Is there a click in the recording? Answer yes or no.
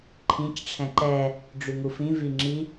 yes